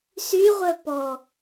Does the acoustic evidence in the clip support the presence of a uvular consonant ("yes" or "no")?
yes